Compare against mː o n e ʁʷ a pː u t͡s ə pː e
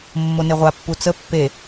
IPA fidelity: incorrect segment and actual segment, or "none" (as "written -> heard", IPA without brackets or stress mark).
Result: none